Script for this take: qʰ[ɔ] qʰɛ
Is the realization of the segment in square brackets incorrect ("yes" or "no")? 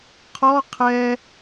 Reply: no